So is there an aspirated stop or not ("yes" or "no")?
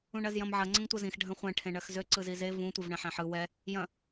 yes